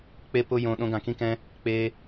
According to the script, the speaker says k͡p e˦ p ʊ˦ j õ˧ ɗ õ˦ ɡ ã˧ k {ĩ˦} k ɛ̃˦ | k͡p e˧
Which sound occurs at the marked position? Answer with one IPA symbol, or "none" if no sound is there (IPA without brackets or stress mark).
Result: ĩ˦